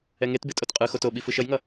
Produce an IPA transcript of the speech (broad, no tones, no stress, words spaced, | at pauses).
ɛŋetbe tʼotqʼɯxot o ɓifɯʃʌjŋʌ